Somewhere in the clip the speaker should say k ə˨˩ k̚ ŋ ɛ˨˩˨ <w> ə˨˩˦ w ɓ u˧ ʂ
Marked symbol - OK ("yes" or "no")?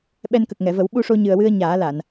no